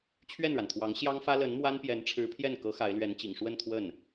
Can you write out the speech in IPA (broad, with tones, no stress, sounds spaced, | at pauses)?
t͡ɕʰ ɥ ɛ˥˩ n ɻ a˩ n t̪ʰ w ɑ˧˥ ŋ ɕ j ɑ˥ ŋ f ä˥ l ə˧˥ n m w a˥ n p j ɛ˧˥ n ʈ͡ʂʰ ɻ̩˧˥ pʰ j ɛ˥˩ n k ɤ˧˥ x a˧˥ ɪ̯ l ɥ ɛ˧˥ n t͡ɕ ḭ˨˩ ŋ ʂ w ə˥˧ n t̪ʰ w ə˥˩ n